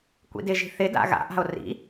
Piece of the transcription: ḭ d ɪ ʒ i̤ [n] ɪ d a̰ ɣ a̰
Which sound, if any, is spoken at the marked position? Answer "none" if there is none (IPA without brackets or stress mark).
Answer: θ